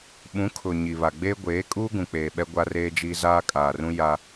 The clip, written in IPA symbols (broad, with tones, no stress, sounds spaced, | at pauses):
ɓ ũ˨˦ kʰ ʊ˨ ɲ i˨ β a˨ ɡ͡b eː˦ ɡʷ eː˨˦ kʼ uː˦ ɡ ũ˨ k͡p eː˨ ɓ ɛ˦ ɡʷ a˦ r eː˦ d͡ʒ iː˦ z aː˦ kʼ aː˨ r ũ˦ j a˦